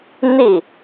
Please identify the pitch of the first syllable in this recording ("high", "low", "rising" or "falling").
falling